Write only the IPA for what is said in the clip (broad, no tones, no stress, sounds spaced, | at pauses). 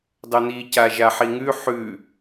dˤ ø n̪ i c a ʒ a ħ i ŋ ʉ ħ ʉ